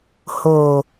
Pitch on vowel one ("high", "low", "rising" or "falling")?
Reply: low